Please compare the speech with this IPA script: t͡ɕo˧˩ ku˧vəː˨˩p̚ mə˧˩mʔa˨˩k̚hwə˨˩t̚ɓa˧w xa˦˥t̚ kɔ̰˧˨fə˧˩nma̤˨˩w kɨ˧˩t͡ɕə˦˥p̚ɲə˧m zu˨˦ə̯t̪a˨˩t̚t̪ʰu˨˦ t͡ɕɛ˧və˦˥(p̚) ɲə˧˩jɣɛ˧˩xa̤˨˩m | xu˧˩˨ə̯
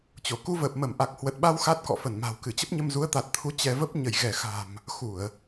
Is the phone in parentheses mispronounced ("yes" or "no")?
no